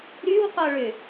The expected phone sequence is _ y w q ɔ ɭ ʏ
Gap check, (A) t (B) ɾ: B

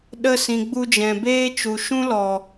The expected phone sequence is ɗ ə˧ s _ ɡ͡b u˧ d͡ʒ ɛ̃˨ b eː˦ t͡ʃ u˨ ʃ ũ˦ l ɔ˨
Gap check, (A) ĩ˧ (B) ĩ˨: B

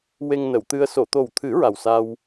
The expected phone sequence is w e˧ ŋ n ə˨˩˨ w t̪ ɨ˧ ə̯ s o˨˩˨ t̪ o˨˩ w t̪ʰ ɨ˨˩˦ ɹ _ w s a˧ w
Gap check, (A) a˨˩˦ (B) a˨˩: B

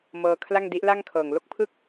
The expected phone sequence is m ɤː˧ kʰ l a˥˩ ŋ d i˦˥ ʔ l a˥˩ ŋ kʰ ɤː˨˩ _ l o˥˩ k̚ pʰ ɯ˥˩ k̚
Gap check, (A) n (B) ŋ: B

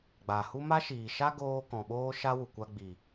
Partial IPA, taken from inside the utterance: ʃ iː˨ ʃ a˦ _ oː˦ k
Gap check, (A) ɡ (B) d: A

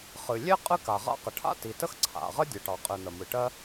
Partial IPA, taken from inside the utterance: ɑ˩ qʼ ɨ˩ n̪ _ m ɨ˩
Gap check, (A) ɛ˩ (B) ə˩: B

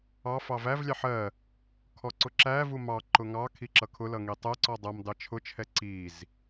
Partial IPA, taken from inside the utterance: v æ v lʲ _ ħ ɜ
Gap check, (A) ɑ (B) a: A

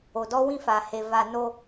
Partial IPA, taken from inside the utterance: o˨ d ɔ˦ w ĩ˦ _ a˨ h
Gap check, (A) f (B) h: A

